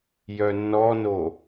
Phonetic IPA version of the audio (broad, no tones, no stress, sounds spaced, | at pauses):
j œ nː ɔ n o